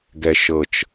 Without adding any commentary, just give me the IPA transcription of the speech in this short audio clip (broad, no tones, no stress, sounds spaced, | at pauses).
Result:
ɡ ɛ ʃ ɤ t͡ʃ